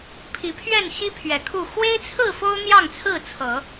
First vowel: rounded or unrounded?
unrounded